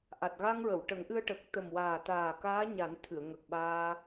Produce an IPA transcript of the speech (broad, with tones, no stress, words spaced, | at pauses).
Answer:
ʔa˨˩t̚ɣa˧ŋ ɹə˨˩˨wʈə˨˩˦ŋʔɨ˧ə̯ ʈə˨˩k̚t̪ə˨˩mwaː˨˩ t̪aː˨˩ kaː˧˥ɲa˨˩˦nt̪ʰɨ˨˩˨ə̯ ŋə˨˩k̚ ɓaː˧